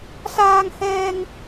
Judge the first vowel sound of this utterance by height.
low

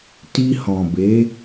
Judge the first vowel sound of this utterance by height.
high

